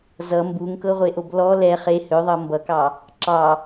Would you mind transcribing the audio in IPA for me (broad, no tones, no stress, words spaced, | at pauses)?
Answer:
zʌ mbuŋkɤʁʷeʔob lɔ lɛ χe høðˤɤ mbʌkɑ | ǁɑ